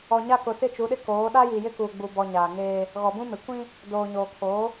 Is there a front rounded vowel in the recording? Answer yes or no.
no